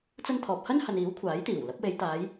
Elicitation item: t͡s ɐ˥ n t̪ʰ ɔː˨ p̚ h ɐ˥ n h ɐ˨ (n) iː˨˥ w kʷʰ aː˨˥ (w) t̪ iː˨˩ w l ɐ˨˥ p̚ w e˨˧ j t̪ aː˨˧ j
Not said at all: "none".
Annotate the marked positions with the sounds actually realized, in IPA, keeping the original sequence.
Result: n, j

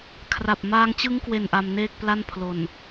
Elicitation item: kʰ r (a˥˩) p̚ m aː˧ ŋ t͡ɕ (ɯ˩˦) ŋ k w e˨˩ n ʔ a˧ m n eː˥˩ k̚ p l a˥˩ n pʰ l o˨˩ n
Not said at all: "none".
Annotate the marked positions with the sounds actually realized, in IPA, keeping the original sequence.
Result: a˨˩, ɯ˦˥

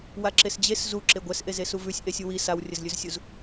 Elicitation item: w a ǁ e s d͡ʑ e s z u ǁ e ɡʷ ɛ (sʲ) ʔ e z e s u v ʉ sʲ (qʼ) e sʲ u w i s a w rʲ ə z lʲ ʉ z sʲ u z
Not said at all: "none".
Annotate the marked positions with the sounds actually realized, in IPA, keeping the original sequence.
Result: s, ʔ

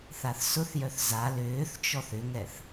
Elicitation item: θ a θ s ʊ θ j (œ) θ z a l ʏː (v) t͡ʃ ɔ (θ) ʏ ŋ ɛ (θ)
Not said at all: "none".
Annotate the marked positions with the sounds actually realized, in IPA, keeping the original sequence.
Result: œ, θ, θ, θ

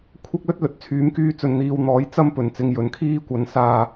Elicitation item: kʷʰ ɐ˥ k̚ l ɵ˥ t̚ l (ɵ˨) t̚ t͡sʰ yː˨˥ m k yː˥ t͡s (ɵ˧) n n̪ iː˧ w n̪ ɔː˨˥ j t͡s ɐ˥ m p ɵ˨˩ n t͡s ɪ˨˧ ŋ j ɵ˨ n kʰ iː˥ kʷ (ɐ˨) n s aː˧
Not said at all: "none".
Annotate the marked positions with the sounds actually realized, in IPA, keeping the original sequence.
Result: ɵ˨, ɵ˧, ɐ˨˧

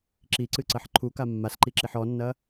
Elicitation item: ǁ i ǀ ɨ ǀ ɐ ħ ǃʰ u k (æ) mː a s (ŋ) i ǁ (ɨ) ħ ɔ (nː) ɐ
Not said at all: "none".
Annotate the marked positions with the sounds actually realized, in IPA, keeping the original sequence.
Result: a, ǃ, i, nː

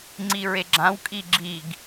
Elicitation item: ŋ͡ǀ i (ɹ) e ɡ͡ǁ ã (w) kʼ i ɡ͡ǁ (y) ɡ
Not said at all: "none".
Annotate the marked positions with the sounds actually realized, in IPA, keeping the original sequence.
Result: ɹ, w, i

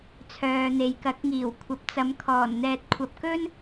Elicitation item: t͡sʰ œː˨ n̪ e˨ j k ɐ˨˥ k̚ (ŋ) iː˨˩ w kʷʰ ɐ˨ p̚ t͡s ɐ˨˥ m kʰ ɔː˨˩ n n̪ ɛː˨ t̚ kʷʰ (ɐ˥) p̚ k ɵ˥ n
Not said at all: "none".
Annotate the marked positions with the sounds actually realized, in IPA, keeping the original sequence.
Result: ŋ, ɐ˨

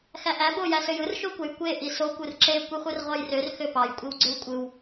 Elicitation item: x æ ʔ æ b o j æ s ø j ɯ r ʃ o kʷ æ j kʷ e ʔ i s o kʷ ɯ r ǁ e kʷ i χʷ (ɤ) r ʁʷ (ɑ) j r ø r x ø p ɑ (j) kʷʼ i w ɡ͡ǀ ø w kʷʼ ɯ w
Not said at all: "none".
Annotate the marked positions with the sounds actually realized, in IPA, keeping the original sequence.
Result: ɯ, ɑ, j

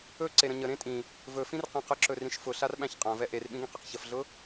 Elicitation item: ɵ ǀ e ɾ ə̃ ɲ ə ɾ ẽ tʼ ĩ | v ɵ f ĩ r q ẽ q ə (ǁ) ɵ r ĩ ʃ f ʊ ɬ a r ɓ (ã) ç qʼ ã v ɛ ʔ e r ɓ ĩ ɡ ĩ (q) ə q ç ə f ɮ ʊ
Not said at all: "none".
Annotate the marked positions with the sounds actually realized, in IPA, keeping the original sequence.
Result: ǁ, æ̃, q

